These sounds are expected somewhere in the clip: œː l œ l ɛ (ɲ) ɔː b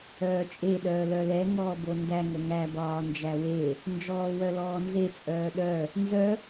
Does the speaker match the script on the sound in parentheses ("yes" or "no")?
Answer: no